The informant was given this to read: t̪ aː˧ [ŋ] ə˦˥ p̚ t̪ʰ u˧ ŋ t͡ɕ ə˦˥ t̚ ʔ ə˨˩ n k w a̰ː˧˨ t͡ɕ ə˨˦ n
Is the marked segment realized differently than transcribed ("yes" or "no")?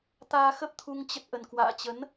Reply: yes